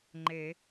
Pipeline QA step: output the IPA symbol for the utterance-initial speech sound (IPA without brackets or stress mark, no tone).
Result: ŋ͡ǃ